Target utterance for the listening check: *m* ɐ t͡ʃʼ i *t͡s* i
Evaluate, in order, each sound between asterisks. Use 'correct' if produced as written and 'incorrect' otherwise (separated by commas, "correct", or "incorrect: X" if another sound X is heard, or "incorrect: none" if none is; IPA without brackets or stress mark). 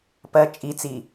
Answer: incorrect: p, correct